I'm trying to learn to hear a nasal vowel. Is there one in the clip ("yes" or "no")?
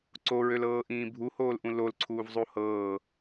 yes